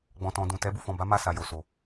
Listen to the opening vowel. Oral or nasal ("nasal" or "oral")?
nasal